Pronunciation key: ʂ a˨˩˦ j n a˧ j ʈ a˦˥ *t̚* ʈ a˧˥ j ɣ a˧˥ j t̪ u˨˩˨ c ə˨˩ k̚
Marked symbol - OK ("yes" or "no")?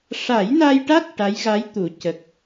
yes